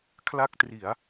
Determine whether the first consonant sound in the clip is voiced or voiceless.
voiceless